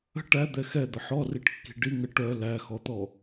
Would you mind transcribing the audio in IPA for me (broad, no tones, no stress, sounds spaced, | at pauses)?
ə̤ ʈ æ d̪ ɛ x ɛ d̪ ə ħ ɔ r i ʈ kː i̤ ɖ i ŋ ə ʈ œ l æ x ɔ t̪ ɔ